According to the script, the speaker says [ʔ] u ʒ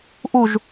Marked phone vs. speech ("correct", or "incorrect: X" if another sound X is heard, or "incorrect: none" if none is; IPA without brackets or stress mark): correct